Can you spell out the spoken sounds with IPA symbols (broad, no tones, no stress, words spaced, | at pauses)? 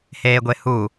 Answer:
heːɡʷehu